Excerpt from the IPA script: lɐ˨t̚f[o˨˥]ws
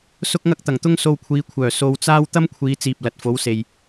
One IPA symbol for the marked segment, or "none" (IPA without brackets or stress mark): o˨˥